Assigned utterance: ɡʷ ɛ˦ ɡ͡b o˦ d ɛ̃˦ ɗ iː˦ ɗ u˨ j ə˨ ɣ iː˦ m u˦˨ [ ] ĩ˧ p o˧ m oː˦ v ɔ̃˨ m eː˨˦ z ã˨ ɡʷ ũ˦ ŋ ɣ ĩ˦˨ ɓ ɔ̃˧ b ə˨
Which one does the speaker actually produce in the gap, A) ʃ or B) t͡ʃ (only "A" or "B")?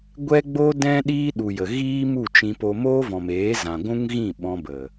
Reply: B